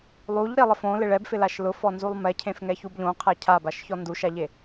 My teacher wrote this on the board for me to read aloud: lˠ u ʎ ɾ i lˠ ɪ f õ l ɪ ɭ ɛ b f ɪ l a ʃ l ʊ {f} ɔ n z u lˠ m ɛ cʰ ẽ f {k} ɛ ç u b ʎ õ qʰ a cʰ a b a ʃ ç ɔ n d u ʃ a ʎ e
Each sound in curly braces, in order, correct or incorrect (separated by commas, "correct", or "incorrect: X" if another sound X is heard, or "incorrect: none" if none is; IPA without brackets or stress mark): correct, incorrect: ŋ